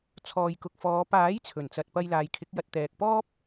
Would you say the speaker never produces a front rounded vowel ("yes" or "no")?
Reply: yes